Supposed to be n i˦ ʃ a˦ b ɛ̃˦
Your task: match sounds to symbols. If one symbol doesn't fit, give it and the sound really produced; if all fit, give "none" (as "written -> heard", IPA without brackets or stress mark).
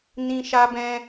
i˦ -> ĩ˦